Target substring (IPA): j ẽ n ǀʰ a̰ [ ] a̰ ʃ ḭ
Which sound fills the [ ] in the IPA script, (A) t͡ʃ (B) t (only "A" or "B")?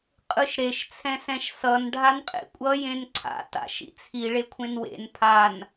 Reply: B